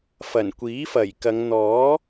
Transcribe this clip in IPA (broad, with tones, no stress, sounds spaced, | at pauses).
f ɐ˨˩ n kʷ iː˨˥ f ɐ˨˩ j k ɐ˨˧ ŋ n̪ ɔː˨˥